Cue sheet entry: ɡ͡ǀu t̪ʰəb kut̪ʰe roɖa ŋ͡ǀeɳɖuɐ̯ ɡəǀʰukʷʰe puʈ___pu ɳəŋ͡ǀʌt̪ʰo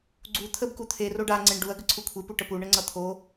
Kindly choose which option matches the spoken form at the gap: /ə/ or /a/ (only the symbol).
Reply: ə